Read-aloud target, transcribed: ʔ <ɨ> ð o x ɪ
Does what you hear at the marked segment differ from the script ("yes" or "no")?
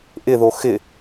yes